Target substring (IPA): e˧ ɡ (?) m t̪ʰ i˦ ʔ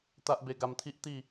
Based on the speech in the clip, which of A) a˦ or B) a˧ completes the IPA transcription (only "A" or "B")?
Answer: B